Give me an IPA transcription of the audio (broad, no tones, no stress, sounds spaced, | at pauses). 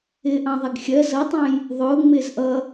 ɪː ʔ ɑ̃ ðˤ ɛ ɡ xʲ ɜ z ʌ tˤ ɑ̃ j | ðˤ ʊː ŋ͡m ɪː z ʔ ʌ